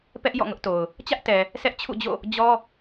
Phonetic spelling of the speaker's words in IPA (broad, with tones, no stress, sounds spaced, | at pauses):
p ɛ˦ ʔ j ɔ̰˦˨ ŋ ʊ˦ ʔ t o˨ ʊ̯ | t͡ɕ ä˦ ʔ t ɛ˨ | sʰ ɛ˦ ʔ t͡ɕʰ ṵ˦˨ d͡ʑ o̰˦˨ | d͡ʑ ɔ˦